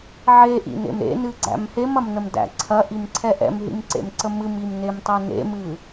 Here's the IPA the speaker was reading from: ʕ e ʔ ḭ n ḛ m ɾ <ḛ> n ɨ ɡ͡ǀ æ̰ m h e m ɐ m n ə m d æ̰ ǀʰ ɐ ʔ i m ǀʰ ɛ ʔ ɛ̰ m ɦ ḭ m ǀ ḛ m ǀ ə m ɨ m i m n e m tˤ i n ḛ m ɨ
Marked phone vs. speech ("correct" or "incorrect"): correct